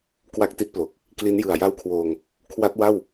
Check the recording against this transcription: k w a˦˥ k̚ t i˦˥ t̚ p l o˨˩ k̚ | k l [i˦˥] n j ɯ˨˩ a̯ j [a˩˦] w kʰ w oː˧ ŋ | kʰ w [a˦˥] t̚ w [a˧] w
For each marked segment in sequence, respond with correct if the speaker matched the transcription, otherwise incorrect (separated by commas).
correct, incorrect, correct, incorrect